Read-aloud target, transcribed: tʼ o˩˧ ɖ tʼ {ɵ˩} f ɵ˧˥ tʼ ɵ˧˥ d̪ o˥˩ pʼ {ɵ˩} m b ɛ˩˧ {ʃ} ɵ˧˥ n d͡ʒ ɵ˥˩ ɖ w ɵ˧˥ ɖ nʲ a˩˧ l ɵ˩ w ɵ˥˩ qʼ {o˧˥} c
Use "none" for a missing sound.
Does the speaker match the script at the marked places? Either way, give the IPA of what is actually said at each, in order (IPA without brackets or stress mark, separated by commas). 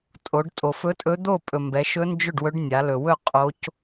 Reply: o˩, ɵ˩, ʃ, o˧˥